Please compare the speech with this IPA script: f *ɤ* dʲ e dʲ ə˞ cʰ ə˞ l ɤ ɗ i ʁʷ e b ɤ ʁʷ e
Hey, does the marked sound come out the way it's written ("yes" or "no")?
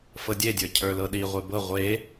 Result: yes